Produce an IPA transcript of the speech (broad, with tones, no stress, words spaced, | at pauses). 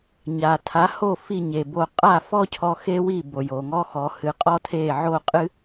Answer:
ɲa˩ tʰa˩˥ho˥˩ fi˥˩ɲe˩bo˧ qʼa˥˩fɔ˥cʰɔ˧ xe˥wi˥˩ bo˩jo˩ŋɔ˥xɔ˩˥ hɨ˩˥qʼɔ˥tʰe˥˩ ʕo˥˩qʼɨ˥